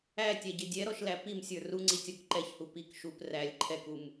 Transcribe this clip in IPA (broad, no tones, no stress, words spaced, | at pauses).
ætʲæɟɪ dʲɛɾɔʃlæ pimsʲə˞ ruŋ͡ǀitʲɔk ǃɛçhu pik ʃup rælʲ ǃʰɛkum